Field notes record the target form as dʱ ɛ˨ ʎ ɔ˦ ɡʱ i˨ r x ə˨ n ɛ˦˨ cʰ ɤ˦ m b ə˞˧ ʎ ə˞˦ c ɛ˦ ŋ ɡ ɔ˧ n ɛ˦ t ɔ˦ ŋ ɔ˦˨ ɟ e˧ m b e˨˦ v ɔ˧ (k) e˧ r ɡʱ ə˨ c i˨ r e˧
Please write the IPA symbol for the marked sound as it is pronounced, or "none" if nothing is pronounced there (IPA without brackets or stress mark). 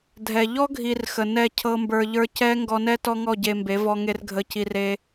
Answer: ŋ